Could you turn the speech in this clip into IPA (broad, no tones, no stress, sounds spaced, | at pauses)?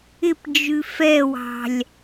ɪ p d͡ʒ ʉ f ɛ w ɑ̤ lʲ